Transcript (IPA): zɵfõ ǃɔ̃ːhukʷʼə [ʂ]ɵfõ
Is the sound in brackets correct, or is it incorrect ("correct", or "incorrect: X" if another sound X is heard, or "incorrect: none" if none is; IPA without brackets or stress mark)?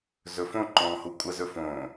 incorrect: z